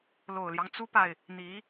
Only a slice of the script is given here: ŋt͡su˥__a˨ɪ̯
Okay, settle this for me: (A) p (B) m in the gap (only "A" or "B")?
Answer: A